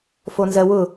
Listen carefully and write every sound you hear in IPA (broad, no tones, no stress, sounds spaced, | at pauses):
f o n z ɜ w ʊ